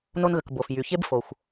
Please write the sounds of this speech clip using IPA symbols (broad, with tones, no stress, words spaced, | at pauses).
no˧nɣə˩k bo˩f jy˩ çe˥bfo˩xʷ